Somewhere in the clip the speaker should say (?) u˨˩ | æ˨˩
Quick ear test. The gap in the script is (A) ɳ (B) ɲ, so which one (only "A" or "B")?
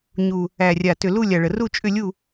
B